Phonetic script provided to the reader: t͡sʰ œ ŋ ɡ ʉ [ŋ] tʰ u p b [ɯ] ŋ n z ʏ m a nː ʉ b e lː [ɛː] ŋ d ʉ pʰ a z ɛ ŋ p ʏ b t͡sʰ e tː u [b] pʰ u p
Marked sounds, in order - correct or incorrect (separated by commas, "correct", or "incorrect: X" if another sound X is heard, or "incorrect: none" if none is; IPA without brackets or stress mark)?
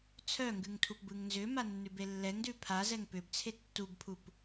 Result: correct, correct, incorrect: ɛ, correct